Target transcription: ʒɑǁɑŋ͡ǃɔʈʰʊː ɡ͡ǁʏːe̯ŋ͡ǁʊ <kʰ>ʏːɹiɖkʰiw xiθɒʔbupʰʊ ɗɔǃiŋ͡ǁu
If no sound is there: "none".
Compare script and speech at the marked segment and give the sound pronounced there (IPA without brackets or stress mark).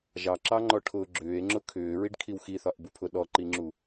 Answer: kʰ